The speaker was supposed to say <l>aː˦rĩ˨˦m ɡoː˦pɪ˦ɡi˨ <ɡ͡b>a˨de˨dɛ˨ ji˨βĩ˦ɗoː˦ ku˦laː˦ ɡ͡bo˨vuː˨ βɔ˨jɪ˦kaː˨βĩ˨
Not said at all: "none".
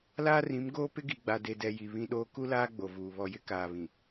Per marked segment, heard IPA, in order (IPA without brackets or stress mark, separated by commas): l, ɡ͡b